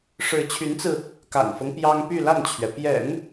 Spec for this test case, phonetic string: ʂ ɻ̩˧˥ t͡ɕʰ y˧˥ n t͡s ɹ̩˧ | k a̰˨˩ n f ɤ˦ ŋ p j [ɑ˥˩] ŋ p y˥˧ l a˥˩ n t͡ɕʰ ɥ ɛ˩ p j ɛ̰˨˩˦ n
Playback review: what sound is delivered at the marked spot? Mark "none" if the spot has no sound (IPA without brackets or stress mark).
ɑ˥